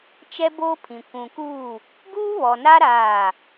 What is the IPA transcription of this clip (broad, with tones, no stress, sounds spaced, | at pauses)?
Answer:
t͡ʃ ɛ˦ b oː˦ pʰ ĩ˨ kʷ ũ˨ k u˦˨ | ɡ uː˦ β ɔ˨ n a˦ ɾ aː˦˨